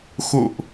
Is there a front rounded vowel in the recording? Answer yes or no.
no